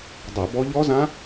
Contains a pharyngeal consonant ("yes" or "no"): no